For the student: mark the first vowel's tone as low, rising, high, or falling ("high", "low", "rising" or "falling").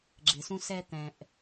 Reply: low